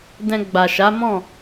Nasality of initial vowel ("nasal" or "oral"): nasal